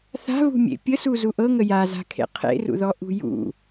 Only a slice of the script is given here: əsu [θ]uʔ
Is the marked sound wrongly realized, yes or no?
yes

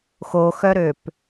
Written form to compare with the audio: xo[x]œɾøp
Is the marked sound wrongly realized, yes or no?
no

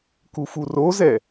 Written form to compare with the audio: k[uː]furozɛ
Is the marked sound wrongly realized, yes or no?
yes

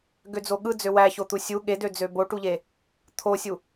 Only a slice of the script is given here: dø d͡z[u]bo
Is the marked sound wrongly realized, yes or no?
yes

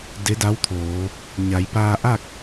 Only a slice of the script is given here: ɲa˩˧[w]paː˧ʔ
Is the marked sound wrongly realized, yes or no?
yes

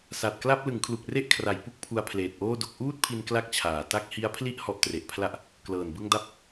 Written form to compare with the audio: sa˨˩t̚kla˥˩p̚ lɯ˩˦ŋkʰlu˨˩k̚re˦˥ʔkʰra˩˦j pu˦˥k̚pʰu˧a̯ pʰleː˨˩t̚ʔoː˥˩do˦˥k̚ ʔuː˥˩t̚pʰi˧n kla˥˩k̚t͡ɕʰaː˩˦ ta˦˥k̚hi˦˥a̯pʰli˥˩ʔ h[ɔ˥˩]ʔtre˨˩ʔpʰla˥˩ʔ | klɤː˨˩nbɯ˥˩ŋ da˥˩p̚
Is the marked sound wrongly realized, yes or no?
yes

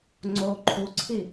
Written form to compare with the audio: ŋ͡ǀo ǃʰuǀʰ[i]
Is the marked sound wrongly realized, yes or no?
no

